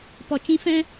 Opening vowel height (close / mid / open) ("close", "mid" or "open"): mid